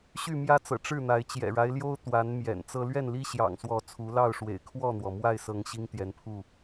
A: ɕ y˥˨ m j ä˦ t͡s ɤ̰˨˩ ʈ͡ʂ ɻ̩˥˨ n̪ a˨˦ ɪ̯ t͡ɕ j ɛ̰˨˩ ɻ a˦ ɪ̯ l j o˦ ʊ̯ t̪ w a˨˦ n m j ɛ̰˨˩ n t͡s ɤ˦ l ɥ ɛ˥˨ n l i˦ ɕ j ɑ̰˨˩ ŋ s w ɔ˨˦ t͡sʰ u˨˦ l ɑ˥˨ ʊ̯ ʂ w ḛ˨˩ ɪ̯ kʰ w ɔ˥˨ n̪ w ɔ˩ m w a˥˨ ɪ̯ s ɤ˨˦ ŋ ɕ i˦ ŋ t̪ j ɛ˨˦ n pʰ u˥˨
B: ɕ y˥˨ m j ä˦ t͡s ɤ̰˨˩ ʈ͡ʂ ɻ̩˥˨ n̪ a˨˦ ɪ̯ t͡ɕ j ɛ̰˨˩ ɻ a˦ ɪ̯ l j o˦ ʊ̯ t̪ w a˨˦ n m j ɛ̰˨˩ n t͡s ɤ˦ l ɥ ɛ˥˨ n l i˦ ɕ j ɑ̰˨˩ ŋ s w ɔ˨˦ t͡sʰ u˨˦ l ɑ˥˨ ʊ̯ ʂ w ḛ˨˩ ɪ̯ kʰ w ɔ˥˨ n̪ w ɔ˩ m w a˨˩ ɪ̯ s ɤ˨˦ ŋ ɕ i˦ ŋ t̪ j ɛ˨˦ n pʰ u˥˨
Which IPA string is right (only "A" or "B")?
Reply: A